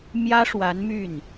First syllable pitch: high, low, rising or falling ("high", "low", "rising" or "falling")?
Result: high